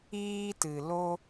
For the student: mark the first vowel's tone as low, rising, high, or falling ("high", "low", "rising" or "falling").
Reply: high